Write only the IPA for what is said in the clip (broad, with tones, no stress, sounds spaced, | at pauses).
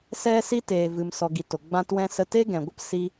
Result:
s ɛ˦ s i˦ t eː˨ v ɨ˨ m s ɔ˨ ɡ i˨ t o˨ ɡ͡b ã˦ t w ɛ̃˦ s ə˦ t e˦ ɡ ɛ̃˨ ɡʷ ə˦ p s i˧